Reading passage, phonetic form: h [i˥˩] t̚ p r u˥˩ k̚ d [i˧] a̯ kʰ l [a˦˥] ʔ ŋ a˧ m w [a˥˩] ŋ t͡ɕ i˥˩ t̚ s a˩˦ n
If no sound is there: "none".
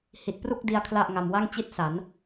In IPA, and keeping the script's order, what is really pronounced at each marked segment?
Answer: i˨˩, i˧, a˥˩, a˥˩

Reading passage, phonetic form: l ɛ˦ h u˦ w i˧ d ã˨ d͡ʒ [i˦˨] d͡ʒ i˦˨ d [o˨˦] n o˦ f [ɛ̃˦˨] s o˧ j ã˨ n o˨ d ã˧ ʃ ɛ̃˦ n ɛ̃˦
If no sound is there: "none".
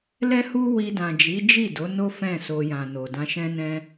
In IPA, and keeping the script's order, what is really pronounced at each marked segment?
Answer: i˨˦, o˨˦, ɛ̃˦˨

